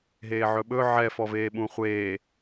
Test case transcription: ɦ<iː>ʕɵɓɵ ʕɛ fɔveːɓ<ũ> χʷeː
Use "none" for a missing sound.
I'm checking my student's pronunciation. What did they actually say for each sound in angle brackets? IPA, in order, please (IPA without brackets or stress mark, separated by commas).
eː, ũ